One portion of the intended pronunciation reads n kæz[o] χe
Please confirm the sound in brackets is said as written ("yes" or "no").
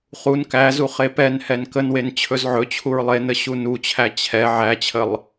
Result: no